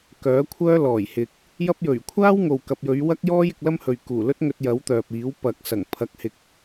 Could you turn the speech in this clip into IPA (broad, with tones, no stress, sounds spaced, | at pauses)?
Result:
k œː˨˥ kʷʰ œː˥ l ɔː˨˩ j h ɪ˨ k̚ | j ɐ˥ p̚ j ɵ˨˩ ɥ kʷʰ aː˥ w ŋ o˨ w k ɐ˨ p̚ j ɵ˨˧ ɥ w ɐ˥ k̚ j ɔː˥ j ɪ˧ k̚ l ɐ˥ m h ɵ˨ ɥ k uː˨˩ l ɵ˥ t̚ ŋ ɵ˧ t̚ j ɐ˨˥ w t̪ œː˨ p̚ iː˨˥ w p ɐ˨ k̚ s ɐ˨˩ ŋ pʰ ɐ˨˥ k̚ h ɪ˨ k̚